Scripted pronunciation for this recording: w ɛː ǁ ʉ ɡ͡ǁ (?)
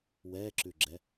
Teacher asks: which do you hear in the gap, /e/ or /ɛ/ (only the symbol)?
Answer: ɛ